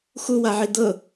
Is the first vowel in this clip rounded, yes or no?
yes